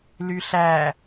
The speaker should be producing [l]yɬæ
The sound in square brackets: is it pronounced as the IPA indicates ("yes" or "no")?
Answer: yes